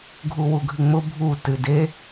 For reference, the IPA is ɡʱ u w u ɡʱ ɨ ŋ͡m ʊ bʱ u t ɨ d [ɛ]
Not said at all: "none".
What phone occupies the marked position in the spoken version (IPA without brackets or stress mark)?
e